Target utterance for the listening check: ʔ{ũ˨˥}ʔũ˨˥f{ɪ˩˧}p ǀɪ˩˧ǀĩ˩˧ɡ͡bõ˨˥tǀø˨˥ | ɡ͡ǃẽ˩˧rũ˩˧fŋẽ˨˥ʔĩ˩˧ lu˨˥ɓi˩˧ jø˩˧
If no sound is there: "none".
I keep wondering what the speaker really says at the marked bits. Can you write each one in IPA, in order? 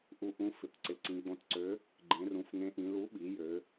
u˨˥, ɪ˩˧

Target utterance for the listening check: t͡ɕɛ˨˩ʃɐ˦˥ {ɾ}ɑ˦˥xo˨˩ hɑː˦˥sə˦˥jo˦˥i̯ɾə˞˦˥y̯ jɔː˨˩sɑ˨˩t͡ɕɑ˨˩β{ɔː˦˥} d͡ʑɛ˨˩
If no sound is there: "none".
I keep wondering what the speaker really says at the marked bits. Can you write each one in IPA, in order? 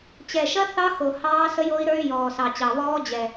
θ, ɔː˦˥

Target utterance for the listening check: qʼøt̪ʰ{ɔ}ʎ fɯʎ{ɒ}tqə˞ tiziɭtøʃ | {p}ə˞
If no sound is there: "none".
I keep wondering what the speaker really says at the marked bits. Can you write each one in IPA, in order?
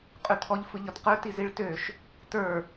ɔ, ɒ, t

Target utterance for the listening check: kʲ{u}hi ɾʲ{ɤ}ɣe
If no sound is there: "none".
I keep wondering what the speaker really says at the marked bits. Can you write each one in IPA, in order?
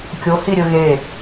o, ɵ

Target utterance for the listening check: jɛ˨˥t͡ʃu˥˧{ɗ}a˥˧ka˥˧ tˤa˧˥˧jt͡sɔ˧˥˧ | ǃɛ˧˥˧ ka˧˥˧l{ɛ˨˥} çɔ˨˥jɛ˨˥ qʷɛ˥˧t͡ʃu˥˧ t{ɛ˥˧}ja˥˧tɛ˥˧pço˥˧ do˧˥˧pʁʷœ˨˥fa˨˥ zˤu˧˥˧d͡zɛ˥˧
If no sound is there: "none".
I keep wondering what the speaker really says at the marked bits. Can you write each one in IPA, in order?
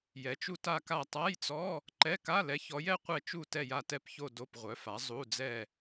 t, ɛ˨˥, ɛ˥˧

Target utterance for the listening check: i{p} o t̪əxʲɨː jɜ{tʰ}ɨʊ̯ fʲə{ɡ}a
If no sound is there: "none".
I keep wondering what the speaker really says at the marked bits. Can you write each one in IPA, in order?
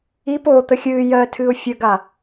p, tʰ, ɡ

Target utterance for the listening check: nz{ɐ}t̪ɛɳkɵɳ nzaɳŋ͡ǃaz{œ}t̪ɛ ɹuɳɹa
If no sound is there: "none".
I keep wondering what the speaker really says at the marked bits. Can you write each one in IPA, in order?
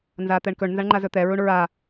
a, ɵ

